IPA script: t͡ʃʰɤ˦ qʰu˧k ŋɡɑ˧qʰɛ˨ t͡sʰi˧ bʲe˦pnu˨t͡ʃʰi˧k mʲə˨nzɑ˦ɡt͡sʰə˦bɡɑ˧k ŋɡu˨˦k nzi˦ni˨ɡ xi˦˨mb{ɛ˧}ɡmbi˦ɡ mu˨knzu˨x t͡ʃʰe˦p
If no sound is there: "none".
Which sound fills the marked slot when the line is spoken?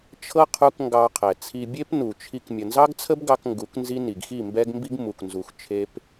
ɛ˦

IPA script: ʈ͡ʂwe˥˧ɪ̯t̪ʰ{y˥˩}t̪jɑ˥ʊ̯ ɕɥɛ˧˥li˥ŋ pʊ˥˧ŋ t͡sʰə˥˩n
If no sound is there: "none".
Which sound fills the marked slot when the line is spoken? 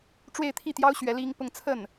i˥˩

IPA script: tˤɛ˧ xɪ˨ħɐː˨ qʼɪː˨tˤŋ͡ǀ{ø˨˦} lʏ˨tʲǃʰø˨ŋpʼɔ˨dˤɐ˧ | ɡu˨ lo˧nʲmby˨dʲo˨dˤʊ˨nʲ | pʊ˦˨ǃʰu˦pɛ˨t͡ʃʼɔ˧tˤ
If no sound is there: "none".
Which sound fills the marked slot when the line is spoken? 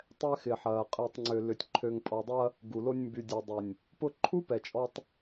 ø˨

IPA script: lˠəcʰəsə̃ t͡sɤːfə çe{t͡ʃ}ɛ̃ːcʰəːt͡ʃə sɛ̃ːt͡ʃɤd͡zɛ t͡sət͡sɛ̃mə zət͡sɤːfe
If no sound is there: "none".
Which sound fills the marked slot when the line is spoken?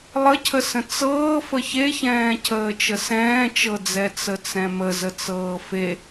ç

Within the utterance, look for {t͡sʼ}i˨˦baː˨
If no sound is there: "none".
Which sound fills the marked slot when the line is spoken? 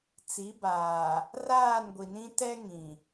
t͡s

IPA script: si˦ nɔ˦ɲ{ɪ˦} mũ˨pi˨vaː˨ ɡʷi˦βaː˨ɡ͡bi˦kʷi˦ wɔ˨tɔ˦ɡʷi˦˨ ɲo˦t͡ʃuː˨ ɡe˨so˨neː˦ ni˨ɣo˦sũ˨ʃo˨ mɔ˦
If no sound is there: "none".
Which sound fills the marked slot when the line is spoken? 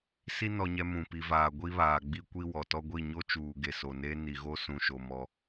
ɛ˦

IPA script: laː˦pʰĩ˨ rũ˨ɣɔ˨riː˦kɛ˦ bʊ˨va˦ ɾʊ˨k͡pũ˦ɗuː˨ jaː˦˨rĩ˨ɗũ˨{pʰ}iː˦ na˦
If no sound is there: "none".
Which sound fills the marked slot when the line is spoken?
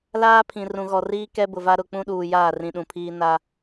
pʰ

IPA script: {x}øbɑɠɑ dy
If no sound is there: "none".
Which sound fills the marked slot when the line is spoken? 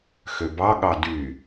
x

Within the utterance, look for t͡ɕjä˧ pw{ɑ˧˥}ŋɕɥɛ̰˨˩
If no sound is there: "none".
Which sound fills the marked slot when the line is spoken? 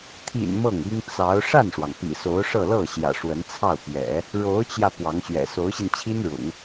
ɑ˧˥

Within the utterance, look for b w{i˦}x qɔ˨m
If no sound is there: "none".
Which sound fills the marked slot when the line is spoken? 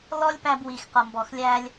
i˨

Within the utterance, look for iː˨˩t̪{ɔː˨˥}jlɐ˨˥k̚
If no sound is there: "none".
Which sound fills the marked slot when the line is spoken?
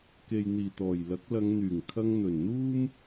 ɔː˨˩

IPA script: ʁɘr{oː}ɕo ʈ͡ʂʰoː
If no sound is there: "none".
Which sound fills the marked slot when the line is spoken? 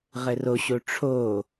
o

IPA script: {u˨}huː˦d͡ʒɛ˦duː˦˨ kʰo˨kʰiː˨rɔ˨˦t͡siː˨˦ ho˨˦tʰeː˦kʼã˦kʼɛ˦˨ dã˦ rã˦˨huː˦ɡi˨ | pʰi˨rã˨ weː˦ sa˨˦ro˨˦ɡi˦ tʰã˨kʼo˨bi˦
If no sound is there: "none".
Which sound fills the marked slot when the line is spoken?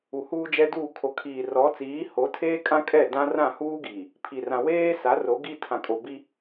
u˨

